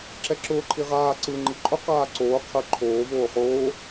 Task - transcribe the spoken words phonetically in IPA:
ǁ ɛ ǁ ʊː ǃʰ i ʁ aː ǀ ɯ ŋ͡ǃ i ǃʼ ʊ q aː ǀ oː qʰ ɯ ǃʰ oː v oː χ oː

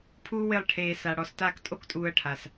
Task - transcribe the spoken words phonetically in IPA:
pʰ uː˦ w ɪː˦˨ lˠ ʈʰ eː˧ s a˨ ɽ ɔ˨˦ s t aː˦ k tʼ o˦ k tʼ uː˧ ɐ̯ ʈʰ a˨ s

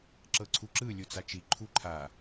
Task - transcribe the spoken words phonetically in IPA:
ǁ ɤ ǀʰ u ǁ ɯ lʲ u t͡s a t͡ʃ i ǃʰ u ǃʰ a

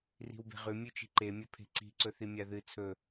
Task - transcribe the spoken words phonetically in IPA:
r i̤ w b e̤ ʁ ʉ mʲ ʉ t͡ʃ i̤ ǃ e mʲ ɵ pʰ e̤ ǀ i̤ ǀ ɵ θ i mʲ a ð ɨ t͡sʰ ɵ

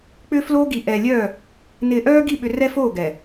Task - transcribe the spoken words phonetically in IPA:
k͡p ʏ˦ f l o˦ ɡ i˨ ʔ ɛ˨ lʲ œ˦˨ | n ɪː˨ ʔ œː˦ ɡ i˦˨ ɓ ʏ˨ r ɛ˦ f o˦˨ ɡ ɛ˨

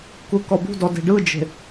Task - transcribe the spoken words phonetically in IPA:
k u k ɔ b ṳ d ɔ d e̤ ɖ ɯ d͡ʒ e̤

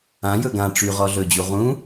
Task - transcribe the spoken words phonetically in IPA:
ã j ɵ ɡ ã ʈ͡ʂ y ʁ ɔ ɮ ɵ d͡ʑ u ʁ ũ

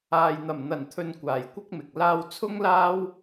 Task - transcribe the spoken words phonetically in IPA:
aː˨ j n̪ ɐ˨˩ m n̪ ɐ˨˩ n t̪ʰ ɵ˧ n kʷ aː˨ j kʷ ɐ˥ k̚ m ɪ˨ k̚ l aː˧ w t͡sʰ ʊ˥ ŋ l aː˥ w

